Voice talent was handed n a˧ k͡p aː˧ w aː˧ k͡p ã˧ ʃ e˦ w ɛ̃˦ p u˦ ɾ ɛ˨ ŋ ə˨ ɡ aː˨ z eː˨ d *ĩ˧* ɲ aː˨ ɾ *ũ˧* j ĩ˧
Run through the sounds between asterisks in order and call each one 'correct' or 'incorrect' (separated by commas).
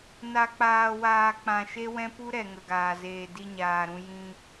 incorrect, correct